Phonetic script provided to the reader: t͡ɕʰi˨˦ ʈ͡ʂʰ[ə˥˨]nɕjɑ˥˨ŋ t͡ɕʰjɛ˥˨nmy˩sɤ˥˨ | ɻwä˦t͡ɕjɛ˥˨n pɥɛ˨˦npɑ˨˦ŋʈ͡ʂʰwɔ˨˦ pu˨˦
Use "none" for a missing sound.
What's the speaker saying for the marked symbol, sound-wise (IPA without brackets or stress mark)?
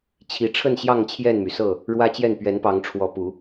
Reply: ə˥˨